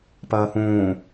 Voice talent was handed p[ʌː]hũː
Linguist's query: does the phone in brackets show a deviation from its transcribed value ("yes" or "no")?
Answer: no